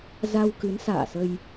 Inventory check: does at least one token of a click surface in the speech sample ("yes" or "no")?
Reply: no